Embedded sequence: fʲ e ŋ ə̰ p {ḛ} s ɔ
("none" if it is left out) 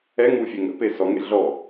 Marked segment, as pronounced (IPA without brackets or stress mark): e